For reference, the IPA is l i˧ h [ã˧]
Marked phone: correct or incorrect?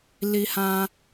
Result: correct